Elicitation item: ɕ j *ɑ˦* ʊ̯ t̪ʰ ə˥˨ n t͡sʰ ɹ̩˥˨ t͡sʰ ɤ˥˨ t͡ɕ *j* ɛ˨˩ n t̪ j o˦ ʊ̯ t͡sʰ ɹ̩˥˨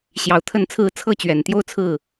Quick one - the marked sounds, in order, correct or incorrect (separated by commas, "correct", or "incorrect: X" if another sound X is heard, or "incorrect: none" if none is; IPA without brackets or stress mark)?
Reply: incorrect: ɑ˨˩, incorrect: ɥ